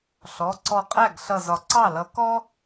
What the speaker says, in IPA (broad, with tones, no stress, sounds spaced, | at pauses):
ɬ ɔ˩˧˩ ǀ ɔ˧˩ qʼ æ˥˩ ɡ ɬ ʌ˧˩ z ɒ˩ ǀ ɑ˥˩ l ʌ˨˦ k ɔ˥